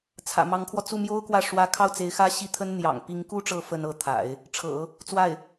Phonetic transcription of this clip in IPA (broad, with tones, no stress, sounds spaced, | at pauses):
t͡sʰ ä̰˨˩ m ɑ˧˥ ŋ kʰ w ɔ˧ t͡s u˥˩ m j o˥ ʊ̯ k w ä˥˩ ʂ w ä˧˥ kʰ ɑ˥˩ ʊ̯ t͡s e˧˥ ɪ̯ x ä˥ ɕ i˥˩ t̪ʰ ə˥ n n̪ j ɑ̰˨˩ ŋ p i˧˥ ŋ k u˥ ʈ͡ʂ ɤ˧˥ f ə˥ n ɤ˧˥ t̪ʰ a̰˨˩˦ ɪ̯ | ʈ͡ʂʰ ɤ̰˨˩˦ | t͡s w a˥˩ ɪ̯